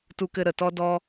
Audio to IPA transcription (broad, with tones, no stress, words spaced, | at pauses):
tu˦kɘ˦ ɾə˨tɔ˦dɔ˦